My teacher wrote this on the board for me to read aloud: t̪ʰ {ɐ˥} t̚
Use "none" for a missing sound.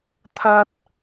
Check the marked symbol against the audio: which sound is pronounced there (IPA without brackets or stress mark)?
ɐ˥